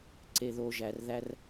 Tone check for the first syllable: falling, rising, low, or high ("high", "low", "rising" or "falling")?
low